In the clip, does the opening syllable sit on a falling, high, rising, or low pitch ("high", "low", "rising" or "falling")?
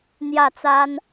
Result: falling